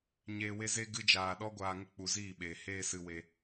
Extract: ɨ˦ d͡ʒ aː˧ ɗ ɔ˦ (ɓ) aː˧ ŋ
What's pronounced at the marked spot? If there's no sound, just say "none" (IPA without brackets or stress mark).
ɡʷ